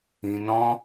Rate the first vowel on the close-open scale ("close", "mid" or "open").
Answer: close